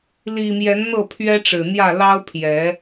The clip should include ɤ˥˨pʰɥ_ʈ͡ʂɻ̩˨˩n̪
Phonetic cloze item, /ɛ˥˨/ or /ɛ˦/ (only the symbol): ɛ˦